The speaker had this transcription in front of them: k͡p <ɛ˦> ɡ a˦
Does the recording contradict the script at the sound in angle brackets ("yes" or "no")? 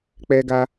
no